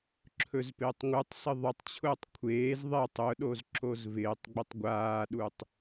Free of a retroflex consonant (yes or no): yes